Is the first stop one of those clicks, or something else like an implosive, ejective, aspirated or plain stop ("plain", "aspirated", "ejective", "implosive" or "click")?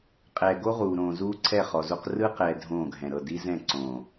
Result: ejective